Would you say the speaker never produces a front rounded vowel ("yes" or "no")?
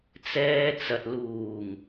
yes